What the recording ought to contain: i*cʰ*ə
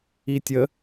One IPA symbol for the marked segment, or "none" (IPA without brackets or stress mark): tʲ